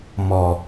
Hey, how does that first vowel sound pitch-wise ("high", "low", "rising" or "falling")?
low